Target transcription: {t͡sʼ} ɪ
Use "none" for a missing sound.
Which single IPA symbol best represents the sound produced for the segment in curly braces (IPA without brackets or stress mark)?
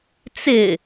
t͡s